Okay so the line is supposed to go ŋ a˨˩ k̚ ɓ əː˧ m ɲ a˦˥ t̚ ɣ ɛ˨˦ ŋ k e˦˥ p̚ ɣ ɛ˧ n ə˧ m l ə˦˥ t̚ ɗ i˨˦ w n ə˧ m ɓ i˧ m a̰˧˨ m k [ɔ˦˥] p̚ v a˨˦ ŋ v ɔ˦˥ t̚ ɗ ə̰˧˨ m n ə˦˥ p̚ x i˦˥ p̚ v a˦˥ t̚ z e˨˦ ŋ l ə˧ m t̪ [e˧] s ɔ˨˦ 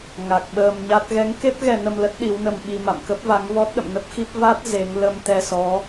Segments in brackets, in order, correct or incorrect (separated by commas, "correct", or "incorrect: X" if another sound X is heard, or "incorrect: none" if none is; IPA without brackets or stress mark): incorrect: ə˦˥, incorrect: ɛ˧